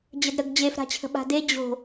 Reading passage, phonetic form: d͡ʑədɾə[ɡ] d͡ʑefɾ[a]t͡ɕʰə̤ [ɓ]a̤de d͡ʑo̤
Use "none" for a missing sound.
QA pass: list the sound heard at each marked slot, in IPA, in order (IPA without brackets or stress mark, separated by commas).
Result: ɡ, a̤, ɓ